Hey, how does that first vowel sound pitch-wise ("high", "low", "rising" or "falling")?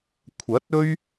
rising